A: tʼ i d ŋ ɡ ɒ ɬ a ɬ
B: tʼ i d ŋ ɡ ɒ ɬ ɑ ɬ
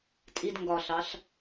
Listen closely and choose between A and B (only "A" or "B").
B